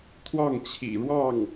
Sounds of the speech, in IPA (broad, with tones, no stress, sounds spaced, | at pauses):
t̪ʰ w ɑ˥˩ ŋ t͡ɕʰ ḭ˨˩ ɻ w ɑ˥˩ ŋ